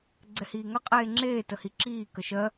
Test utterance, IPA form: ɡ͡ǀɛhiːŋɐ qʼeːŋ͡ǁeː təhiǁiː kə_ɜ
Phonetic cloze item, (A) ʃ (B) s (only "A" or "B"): A